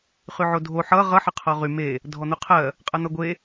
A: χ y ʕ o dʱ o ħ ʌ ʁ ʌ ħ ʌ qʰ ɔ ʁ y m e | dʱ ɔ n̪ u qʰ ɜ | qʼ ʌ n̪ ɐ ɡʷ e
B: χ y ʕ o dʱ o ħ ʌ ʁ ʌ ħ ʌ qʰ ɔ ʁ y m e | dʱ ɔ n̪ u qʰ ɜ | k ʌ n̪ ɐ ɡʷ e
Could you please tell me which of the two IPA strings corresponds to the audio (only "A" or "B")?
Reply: A